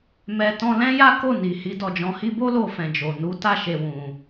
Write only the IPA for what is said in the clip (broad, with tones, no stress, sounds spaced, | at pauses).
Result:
m ɛ˨ t ɔ̃˧ l ɛ̃˦ j a˦ k o˦˨ n i˨ h i˨˦ d ɔ˧ d͡ʒ ɔ̃˧ h i˧ b o˦ l o˧ f ɛ̃˨ d͡ʒ o˨ n u˨˦ t a˦˨ ʃ e˧ w ũ˧